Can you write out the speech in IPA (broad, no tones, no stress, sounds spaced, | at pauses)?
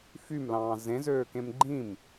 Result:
f y m l ɑ̃ː z ẽ z øː k ẽ m ɡ͡ǃ ĩ m